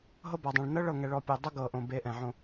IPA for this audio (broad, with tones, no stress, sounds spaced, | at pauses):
ɦ ɤ˦ b a˨ dˤ ɛ̃˨ ɭ n ɤ˦ ɭ ɤ˨ ŋ ɛ˨ ɭ ɔ˨ pʲ o˨ dˤ ɤ˦ ɡ ɤ˨ ʔ õ˨ b e˨˦ ʔ ɛ̃˨ ʕ õ˦